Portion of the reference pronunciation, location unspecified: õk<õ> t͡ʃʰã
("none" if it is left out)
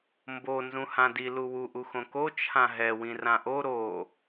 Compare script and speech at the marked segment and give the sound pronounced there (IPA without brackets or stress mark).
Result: o